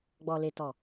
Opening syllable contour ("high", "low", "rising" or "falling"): low